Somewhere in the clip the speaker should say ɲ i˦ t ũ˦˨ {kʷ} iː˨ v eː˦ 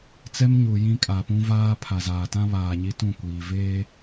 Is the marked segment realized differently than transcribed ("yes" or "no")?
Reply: no